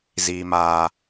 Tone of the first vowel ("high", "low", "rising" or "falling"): low